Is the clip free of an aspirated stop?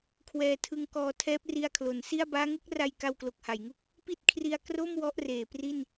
no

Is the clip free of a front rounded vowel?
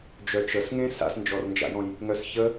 no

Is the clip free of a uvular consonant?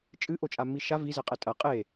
no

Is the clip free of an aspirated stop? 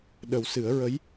yes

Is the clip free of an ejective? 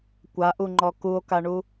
yes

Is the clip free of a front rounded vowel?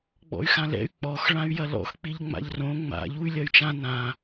no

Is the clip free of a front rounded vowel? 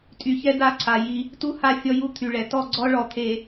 no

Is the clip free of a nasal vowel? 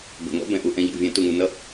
no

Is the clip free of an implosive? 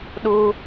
no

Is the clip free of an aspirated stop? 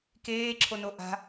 no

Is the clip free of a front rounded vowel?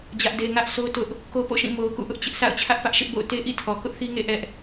yes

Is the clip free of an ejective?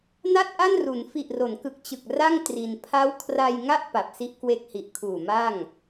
yes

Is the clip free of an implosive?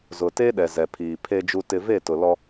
no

